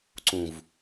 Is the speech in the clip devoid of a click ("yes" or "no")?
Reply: no